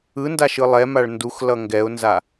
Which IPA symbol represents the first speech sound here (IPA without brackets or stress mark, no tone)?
ɯ